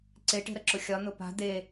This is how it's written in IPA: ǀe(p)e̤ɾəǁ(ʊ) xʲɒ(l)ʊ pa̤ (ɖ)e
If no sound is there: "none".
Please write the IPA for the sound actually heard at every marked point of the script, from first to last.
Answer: ʈ, ʊ, n̪, d̪

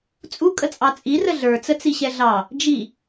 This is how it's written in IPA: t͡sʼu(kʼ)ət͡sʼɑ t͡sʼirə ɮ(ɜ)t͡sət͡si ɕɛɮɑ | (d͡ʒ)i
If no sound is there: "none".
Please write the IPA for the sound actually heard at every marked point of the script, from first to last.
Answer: kʼ, ə˞, d͡ʒ

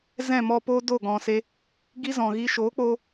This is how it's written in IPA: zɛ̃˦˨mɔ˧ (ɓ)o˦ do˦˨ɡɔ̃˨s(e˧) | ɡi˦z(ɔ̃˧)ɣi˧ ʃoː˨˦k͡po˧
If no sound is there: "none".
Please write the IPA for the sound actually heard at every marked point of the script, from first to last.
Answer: p, e˧, ɔ̃˨

